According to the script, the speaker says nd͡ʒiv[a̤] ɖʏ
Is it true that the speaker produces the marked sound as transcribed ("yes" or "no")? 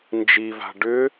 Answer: yes